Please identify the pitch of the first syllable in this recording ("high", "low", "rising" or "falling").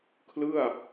falling